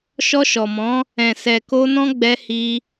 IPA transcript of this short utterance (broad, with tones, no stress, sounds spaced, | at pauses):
ʃ ɔ˧ ʃ ɔ˨ m ɔ̃˨˦ | ɛ̃˨ s ɛ˨ k o˧ n ɔ̃˦ ɡ͡b ɛ˧ h i˧